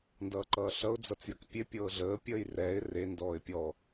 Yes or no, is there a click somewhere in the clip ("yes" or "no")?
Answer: yes